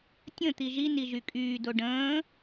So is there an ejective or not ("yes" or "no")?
yes